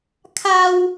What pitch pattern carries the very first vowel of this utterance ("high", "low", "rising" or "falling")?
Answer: high